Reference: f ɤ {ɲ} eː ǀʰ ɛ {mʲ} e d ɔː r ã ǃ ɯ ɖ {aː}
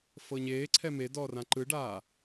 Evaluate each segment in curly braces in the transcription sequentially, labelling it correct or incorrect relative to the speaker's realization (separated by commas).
correct, incorrect, correct